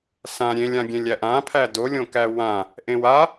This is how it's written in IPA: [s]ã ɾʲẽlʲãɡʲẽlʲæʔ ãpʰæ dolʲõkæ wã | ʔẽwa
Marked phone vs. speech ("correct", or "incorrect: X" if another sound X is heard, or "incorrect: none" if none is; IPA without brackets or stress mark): correct